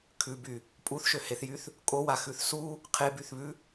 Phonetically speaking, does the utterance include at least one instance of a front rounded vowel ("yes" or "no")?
yes